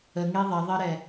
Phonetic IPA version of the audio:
əŋe ðˤɛðˤɜɾɛ

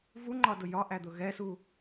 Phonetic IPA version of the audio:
vuŋ͡ǃɒdʊ jɒʔæd̪ʊ ɣɛsu

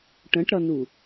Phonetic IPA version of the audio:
ʈə̃ʈɾʌnu

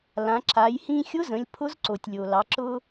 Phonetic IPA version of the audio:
lã˩˧ ǁa˩˧j hĩ˧xʲʊ˧˥zə̃˩˧lʲ pʰʊ˧˥zǀo˩tʲ lʲo˩lɑ˩˧ ǁʊ˥

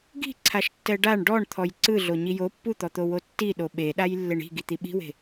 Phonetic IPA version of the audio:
ɡi̤ǀʰaʃ tːɛɖaɳ ɖɔɳ t̪ʰɔjǀɯ ɮoɲijo pːut̪ɔt̪owo tːiɗo ɓeɗaj lːeɳi̤ ɡit̪iɓi̤we̤

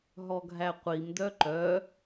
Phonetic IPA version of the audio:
ɦɔɡʱæqʷim dœǃœ

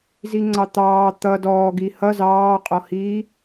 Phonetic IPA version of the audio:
ziŋ͡ǀɑt̪ɑː t̪ʌ dɔːɡi hʌ zɑːqʼɔhiː

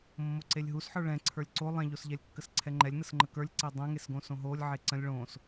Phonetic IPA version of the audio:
mːoǀelʲɦusħə˞ ɭɛ̃ ǀʰə˞lʲǀo lˠɛ̃ʎosʎɛlʲkːəs ǀʰɛŋ͡ǃɛlʲnəsŋ͡ǃə kə˞lʲǀe dˤɛ̃ŋesɡõ sõɦolʲʕe ǀə̃lʲ ɭõs

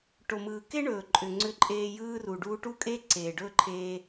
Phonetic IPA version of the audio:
ʈo˩mɯː˩ke˥ɳɵː˩ ǃʼʏ˩ŋ͡ǀʏ˧ǃʼeː˧ jɯː˥ru˩ ɖuː˧ʈu˥kʼeː˥ ǀeː˩ɖɵː˥ǃʰeː˧

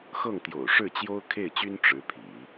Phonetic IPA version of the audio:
xɤ˥˩ŋt̪jo̰˨˩ʊ̯ʂɻ̩˥˩t͡ɕjo˥ʊ̯ kʰe˥˩ɪ̯t͡ɕy˥n ʈ͡ʂɻ̩˧˥pʰḭ˨˩˦

